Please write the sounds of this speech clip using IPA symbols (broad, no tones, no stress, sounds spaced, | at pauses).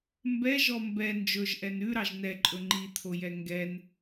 m b ɛ ʒ ɔ m b ɛ n d͡ʒ ɵ ʒ ʔ ɛ n ʉ ɾ ɑ ʒ n ɛ ǃʼ ɵ ŋ͡ǃ i t̪ʰ o j ɛ ŋ ɡ ɛ n